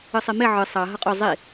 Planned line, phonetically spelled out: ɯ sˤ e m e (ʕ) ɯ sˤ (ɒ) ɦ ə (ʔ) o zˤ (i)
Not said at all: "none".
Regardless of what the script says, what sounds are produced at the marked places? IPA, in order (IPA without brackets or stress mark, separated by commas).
ʕ, ɑ, qʼ, i